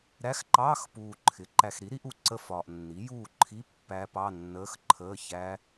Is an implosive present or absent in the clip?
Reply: absent